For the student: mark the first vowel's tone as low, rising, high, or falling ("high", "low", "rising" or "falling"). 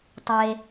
low